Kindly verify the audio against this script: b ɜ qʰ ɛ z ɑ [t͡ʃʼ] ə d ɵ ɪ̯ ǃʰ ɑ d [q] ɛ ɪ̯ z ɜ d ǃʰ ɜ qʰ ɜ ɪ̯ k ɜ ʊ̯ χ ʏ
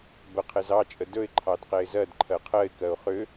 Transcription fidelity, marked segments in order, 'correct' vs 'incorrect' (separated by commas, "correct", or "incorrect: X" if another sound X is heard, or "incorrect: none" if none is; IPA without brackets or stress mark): correct, correct